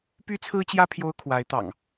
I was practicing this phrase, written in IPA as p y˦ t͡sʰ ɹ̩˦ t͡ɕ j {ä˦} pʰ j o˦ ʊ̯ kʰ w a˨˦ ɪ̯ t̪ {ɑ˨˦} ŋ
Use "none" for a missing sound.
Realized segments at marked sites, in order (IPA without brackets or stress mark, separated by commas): ä˦, ɑ̰˨˩